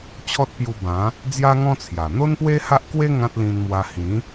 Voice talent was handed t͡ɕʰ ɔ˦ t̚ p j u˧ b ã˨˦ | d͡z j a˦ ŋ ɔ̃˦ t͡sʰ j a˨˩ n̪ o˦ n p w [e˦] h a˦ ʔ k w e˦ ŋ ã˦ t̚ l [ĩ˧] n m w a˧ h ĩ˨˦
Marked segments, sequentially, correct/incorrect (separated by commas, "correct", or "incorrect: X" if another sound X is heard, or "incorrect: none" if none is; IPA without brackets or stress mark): correct, correct